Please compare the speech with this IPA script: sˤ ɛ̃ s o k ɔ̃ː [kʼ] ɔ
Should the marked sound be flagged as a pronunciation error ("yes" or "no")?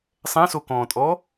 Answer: yes